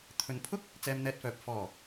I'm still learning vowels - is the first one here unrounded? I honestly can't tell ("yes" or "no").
no